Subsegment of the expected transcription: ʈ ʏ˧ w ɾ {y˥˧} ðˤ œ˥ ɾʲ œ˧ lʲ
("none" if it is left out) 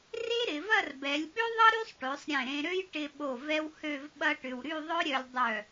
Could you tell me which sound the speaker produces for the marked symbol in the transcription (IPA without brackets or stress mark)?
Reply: y˥˧